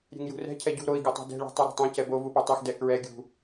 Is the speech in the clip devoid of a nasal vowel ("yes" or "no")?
no